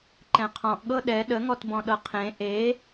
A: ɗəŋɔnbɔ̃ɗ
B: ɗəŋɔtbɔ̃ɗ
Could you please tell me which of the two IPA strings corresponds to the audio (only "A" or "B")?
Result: B